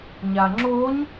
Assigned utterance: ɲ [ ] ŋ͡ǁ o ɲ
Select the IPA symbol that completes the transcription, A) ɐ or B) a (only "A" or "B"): B